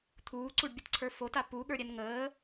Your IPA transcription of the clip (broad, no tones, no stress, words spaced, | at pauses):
t̪ʰuːǀuɖbʲətǀʰə˞ fota puɠə˞ɾʲɛn ŋəː